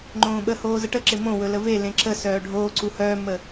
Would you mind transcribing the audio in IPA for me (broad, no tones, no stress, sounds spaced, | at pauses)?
ŋ͡ǃ õː ɓ ə h oː z ə ʈ ə ǁ ɪ m õ w ɵ l ə v e l ẽ ǁ ə s œː ɖʱ oː ǀ u h œː mː ə